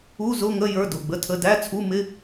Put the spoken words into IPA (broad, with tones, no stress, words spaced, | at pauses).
u˧˥˧zʊ˧˥˧ŋə˧˥˧ jə˞˧˥˧dʊ˩˧˩ɡ͡bə˧˥˧tʰə˧˥˧ dæ˧˥˧t͡sʰu˧˥˧mɪ˧˥˧